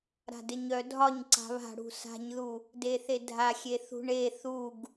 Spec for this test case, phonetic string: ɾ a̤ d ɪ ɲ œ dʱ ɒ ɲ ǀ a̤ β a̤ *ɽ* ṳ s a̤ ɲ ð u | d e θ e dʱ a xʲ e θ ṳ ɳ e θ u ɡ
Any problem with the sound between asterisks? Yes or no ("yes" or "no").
no